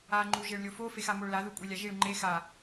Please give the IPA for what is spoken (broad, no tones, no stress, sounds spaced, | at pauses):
a ŋ͡ǃ u ʒ e ɭ lʲ o f o f e x a m o ɭ l a ð u kʷʼ e lʲ a ʒ i ɭ ŋ͡ǃ e x a